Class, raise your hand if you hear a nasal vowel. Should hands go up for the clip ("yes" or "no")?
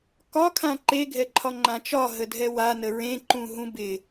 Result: yes